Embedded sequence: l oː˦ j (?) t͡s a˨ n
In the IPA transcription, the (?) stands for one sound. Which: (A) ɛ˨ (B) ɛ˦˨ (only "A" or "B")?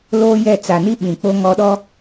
B